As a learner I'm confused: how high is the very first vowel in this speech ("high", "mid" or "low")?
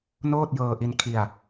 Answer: mid